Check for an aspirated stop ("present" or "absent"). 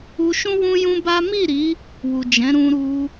absent